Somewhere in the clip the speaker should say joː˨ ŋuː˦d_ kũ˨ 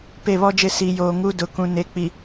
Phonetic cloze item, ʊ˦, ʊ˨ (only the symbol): ʊ˨